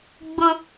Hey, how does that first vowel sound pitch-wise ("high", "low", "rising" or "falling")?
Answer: high